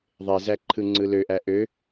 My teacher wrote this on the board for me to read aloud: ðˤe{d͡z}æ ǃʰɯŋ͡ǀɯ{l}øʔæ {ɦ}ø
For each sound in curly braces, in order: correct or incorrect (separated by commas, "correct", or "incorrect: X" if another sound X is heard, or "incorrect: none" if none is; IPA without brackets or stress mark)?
incorrect: z, correct, incorrect: ʔ